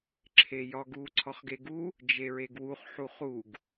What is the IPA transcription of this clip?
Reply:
ǁʰ e j ɒ ɡ u ǀʰ ɒ χ ɡ e ɡ u | d͡ʒ e ɹ e ɡ w u χ ħ u χ u ɡ

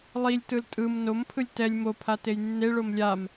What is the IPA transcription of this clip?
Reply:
lˠ i lʲ t ɯ l tʼ ɯ m n o m pʰ ɯ lʲ t ɛ lʲ m o pʰ a t e j nː e ɭ o m lʲ a m

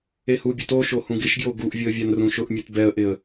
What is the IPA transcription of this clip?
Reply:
e h u bʲ u t o ʃ o h ũ ɡ ɪ ʃ ɡ j o ɡ u ʔ vʲ ʊ ə̯ vʲ a n r ũ ʃ ʊ ʔ mʲ u t b ɛ ə̯ ʔ ɪ ə̯

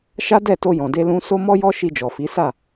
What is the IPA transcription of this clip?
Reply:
ʃ a˦ d ɛ˦˨ t o˧ j ɔ̃˨ d e˧ l ũ˧ s o˦ m ɔ˦ j ɔ˦ ʃ i˧ d͡ʒ ɔ˨ f i˨˦ s a˦˨

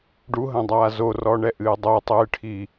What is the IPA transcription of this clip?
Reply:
ɖ u ɦ ɐ̃ dˤ aː z o r ɔ ɳ ɛ ʔ ɨː dˤ o tˤ ɨː ʈʰ i

